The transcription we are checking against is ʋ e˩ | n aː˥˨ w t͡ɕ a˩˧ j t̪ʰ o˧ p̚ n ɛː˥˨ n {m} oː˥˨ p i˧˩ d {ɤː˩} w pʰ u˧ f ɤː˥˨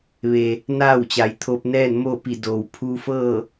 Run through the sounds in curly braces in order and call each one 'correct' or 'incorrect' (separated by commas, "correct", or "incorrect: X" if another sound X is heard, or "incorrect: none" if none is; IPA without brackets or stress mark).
correct, incorrect: oː˩